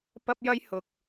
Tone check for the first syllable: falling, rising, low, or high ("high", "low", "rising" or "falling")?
high